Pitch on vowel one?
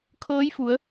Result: rising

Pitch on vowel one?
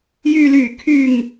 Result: low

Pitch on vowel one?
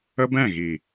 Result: high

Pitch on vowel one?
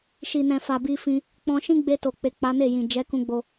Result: low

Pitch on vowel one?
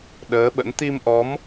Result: rising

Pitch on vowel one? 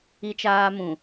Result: high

